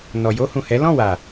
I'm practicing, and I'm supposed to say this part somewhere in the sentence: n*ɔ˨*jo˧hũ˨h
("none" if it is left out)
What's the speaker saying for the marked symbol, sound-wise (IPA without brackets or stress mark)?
ɔ˨